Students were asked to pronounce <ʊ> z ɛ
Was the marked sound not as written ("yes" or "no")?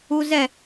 yes